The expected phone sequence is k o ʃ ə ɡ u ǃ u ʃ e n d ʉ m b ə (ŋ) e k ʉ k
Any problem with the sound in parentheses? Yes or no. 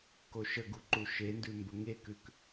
no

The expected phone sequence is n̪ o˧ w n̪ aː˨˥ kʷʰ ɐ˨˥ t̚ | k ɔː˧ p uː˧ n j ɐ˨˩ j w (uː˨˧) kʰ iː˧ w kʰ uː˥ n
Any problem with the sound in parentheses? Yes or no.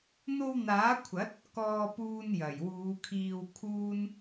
no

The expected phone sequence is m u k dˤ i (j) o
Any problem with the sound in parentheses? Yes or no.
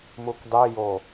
no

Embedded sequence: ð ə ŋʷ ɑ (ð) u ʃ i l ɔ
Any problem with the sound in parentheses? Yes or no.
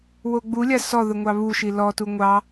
yes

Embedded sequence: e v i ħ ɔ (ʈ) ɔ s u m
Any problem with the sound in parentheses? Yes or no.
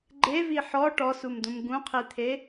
no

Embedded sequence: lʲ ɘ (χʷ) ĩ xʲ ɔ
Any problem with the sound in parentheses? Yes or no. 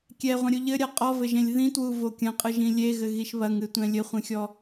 no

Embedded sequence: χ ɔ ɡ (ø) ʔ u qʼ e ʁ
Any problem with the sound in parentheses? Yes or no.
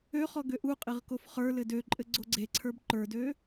no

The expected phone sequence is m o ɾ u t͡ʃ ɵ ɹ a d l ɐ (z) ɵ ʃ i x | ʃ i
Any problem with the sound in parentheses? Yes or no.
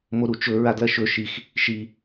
yes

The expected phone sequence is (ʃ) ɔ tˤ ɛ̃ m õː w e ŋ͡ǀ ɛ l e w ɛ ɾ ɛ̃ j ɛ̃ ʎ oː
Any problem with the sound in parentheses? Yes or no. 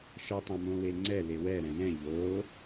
no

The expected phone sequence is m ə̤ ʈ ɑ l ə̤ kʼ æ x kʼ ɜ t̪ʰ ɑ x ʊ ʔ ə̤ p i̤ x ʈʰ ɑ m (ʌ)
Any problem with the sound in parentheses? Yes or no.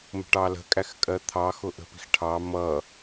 no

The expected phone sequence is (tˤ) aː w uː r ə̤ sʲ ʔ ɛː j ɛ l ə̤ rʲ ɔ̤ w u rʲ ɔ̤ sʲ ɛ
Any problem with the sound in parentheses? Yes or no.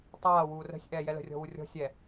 no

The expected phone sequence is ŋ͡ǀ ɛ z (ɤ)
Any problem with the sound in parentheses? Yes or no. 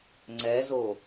yes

